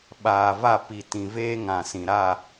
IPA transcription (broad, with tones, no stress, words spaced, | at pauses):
ɓaː˨va˦˨ pi˨tĩ˨ veː˦ŋã˨sĩ˨ɾa˦˨